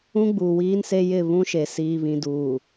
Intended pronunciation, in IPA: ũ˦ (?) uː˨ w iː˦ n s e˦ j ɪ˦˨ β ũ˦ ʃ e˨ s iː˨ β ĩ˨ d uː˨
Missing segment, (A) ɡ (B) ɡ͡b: B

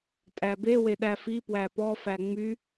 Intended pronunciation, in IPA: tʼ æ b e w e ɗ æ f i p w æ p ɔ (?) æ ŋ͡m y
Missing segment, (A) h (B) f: B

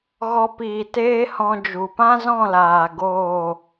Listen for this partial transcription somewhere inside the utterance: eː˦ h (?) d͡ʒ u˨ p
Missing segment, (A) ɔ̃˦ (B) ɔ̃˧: B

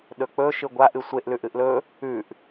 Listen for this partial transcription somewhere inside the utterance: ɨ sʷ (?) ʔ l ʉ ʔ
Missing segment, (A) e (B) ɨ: A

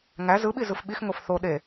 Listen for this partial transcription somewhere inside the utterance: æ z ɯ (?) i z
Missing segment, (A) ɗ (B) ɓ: B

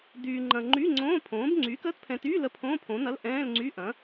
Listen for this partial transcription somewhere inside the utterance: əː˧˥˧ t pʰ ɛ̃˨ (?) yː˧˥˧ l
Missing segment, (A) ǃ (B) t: B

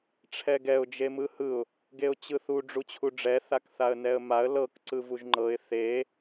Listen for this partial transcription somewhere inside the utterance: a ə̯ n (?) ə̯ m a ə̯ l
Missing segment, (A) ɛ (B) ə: A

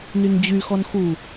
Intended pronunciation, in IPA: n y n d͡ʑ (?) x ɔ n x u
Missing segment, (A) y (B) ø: A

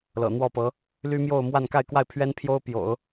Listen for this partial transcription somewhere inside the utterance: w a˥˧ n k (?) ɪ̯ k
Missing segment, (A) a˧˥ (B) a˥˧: B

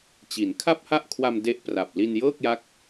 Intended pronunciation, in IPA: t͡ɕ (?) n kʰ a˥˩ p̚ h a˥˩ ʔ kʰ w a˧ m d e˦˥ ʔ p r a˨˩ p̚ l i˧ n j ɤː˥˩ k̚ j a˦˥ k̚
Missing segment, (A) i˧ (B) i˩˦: B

